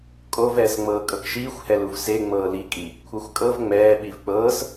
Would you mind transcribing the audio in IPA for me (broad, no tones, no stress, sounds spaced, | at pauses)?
kʼ o v ɛː s ŋ͡m ɤː kʼ ɤ k ʃ iː xʷ h ɛ l u v s e ŋ͡m ɤː l i kʼ i | kʷʰ ɤ xʷ kʼ ɤ v ŋ͡m ɛː ɓ i v k͡p ɤː s